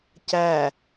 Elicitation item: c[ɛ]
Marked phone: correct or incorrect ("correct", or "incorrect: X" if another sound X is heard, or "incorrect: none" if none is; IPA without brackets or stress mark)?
incorrect: æ